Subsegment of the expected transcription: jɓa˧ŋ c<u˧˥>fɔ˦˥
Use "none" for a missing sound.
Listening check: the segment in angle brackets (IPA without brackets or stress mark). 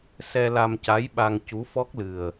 u˧˥